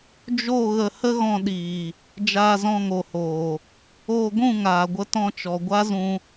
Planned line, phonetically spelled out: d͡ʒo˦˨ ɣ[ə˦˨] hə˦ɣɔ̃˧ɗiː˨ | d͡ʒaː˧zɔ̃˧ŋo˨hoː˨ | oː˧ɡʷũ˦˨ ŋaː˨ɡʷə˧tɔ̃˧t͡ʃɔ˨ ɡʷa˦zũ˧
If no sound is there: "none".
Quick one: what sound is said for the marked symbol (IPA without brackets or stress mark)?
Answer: ə˧